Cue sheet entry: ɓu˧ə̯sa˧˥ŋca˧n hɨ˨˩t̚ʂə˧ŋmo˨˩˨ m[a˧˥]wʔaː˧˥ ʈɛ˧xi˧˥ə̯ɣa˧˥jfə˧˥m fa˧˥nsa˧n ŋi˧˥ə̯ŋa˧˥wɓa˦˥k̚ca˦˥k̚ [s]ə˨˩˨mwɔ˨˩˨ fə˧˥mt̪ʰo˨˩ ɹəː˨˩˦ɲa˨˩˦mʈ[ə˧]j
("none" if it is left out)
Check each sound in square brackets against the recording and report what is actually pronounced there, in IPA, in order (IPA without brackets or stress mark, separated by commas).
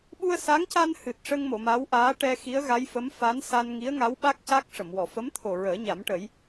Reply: a˧˥, ʂ, ə˨˩˦